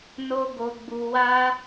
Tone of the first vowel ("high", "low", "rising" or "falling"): high